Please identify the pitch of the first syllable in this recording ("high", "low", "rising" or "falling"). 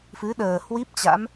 rising